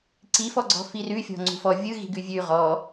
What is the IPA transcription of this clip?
ǀifɔɡ͡ǀɔ̤ firʉfʲɔ̤ ŋ͡ǀṳfɔ vʲɯɣi̤ɡʉ vʲʉ ʁɔ

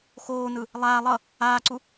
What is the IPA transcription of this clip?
xoːnɯ | lˠaː lˠʌ | aːǀu

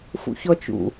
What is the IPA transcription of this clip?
fṵçɔt͡ʃṵ

